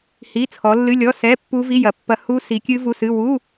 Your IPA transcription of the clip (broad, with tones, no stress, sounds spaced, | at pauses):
h i˧˥˧ t͡sʰ ɔ˨˦ lː ɨ˧˥˧ lʲ ɔ˧˥˧ s ɛ˧˥˧ pː u˦˥ v i˧˥˧ j ɐ˨˦ pː ɐ˦˥ h u˦˥ s i˨˦ kʲ ɨ˦˥ v u˧˥˧ s ɨ˧˥˧ w u˧˥˧